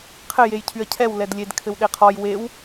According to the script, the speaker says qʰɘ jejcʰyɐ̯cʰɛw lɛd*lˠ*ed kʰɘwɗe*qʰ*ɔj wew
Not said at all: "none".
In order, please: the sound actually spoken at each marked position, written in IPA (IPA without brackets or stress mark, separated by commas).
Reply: lʲ, qʰ